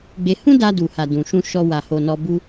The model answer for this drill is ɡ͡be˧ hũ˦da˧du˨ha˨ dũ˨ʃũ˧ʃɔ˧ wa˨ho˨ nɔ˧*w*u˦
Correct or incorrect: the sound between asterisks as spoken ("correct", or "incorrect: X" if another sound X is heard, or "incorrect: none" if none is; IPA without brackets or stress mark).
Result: incorrect: b